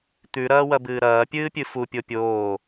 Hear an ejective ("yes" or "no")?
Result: no